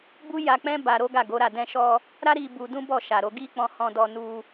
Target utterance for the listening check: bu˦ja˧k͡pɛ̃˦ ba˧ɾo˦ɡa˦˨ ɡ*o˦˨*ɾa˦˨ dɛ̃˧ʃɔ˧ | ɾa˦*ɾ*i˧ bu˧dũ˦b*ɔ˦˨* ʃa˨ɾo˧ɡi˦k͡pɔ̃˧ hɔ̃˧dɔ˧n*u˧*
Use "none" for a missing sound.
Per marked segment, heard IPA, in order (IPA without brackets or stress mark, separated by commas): o˨˦, ɾ, ɔ˦˨, u˧